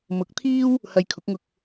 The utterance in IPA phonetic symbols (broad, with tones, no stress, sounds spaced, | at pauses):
m ʊ˨˥ k̚ t̪ʰ iː˥ w | h ɐ˧ j kʰ ʊ˨˥ k̚ ŋ ʊ˧ k̚